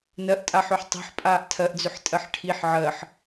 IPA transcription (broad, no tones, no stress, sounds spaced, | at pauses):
n ɜ ʔ tʼ a ħ ø ħ tˤ ɛ̤ ħ pʼ aː ʔ tʰ ɜ ʔ d͡z ʏ ħ tʼ ɜ ħ ʈʰ i ħ ʕ ɜ ħ